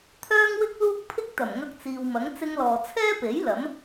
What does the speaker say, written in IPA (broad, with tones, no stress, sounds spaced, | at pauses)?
t̪ʰ œː˥ ŋ w ɪ˥ k̚ l uː˥ k̚ pʰ ɪ˥ k̚ t̪ ɐ˨˩ m ŋ ɐ˧ k̚ t͡s iː˨ w m ɐ˨˥ ŋ t͡s ɪ˧ ŋ l ɔː˨ t͡sʰ ɛː˥ p e˨˥ j l ɐ˨˥ m